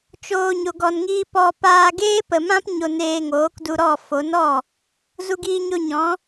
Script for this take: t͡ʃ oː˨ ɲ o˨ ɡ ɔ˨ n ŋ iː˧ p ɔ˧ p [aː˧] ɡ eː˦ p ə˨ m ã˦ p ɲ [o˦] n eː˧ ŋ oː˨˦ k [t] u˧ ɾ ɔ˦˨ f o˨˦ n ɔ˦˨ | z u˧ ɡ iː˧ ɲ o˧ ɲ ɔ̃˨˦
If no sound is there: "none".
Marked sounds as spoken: aː˧, o˧, d

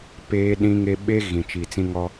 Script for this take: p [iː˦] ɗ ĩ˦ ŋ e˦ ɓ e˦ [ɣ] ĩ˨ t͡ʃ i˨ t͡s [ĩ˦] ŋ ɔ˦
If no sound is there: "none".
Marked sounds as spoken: eː˦, ɣ, ĩ˦

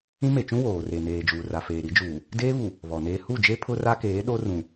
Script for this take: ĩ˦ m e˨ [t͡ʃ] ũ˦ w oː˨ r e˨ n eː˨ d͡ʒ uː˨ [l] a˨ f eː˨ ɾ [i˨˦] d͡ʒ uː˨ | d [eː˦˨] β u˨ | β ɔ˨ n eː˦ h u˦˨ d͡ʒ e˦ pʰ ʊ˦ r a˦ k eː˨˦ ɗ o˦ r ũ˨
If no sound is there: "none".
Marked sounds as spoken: t͡ʃ, r, i˨˦, eː˦

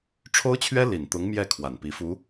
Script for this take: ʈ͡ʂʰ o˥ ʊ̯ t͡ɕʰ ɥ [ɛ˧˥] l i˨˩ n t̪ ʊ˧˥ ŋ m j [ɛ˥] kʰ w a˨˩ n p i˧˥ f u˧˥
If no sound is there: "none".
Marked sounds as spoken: ɛ˥, ɛ˥˩

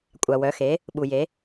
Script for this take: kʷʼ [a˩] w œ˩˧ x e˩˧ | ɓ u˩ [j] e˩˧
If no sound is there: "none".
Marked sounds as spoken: a˩, j

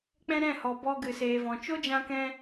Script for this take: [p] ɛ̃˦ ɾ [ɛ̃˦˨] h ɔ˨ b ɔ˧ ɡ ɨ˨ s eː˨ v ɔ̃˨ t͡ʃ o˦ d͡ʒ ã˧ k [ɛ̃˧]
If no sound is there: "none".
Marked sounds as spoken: k͡p, ɛ̃˦˨, ɛ̃˧

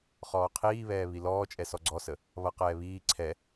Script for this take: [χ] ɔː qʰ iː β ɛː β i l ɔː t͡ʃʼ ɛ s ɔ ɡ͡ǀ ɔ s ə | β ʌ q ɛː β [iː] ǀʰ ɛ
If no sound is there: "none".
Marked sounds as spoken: χ, iː

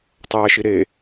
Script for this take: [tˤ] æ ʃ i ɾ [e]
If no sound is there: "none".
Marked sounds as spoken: tˤ, e

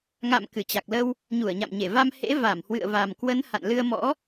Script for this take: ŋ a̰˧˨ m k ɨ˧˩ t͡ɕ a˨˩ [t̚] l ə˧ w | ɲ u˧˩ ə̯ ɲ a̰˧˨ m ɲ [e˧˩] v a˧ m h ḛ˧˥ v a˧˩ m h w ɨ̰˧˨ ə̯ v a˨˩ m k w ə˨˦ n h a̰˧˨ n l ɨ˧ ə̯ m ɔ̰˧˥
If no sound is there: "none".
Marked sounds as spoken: k̚, e˧˩

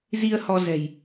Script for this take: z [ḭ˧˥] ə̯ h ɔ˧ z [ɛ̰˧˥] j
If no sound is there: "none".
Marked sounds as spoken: i˧, ɛ̤˨˩

